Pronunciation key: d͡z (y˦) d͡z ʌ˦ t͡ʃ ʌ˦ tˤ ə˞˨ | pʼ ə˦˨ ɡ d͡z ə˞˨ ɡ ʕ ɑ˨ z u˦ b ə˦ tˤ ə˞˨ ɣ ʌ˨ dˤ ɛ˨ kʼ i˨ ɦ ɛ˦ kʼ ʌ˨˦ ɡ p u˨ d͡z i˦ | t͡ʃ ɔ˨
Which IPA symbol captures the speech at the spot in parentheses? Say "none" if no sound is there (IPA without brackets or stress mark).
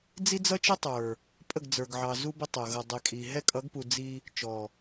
i˦